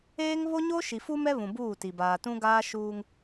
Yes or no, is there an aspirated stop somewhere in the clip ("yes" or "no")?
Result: no